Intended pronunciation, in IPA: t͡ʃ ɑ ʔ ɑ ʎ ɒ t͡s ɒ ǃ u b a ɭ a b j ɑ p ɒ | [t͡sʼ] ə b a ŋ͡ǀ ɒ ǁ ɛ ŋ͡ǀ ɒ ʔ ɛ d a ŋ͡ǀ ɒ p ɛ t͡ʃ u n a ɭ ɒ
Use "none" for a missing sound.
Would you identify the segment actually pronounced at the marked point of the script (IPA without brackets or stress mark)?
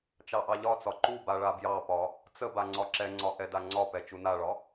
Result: t͡s